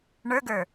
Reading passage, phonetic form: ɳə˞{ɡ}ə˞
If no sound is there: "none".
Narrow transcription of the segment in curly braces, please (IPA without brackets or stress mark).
ɡ